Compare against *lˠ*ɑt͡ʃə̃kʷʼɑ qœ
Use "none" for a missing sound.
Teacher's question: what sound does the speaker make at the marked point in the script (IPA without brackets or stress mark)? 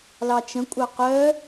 l